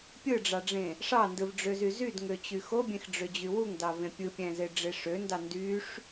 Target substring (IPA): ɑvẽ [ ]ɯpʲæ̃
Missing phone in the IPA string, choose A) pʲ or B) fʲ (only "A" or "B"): A